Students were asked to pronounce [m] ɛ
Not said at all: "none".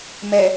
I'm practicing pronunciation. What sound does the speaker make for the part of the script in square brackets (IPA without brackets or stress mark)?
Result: m